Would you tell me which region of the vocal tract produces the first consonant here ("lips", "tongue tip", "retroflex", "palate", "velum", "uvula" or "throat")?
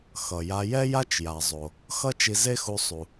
velum